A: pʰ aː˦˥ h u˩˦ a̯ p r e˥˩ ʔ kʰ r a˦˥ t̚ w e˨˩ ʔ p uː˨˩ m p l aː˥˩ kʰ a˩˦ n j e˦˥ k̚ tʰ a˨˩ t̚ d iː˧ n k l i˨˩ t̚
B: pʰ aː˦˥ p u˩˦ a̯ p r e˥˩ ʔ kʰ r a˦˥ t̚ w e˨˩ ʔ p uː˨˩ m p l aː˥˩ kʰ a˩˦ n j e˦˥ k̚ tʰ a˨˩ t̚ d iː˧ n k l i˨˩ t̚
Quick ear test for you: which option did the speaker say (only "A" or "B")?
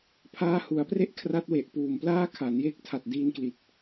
A